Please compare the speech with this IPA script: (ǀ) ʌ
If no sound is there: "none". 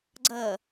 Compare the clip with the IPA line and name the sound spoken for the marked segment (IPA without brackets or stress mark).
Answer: ɡ͡ǀ